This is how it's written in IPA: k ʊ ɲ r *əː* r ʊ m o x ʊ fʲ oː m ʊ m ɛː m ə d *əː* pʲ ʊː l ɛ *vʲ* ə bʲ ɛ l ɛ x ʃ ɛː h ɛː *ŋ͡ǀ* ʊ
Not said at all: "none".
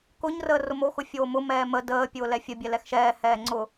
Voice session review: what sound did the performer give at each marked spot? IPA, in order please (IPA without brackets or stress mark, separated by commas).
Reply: əː, əː, fʲ, ŋ͡ǀ